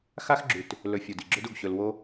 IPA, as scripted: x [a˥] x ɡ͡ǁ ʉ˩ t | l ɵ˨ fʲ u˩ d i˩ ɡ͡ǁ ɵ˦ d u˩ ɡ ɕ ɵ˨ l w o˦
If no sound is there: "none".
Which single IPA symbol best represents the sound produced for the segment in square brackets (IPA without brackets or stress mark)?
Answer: a˥